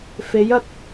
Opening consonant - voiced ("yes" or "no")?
no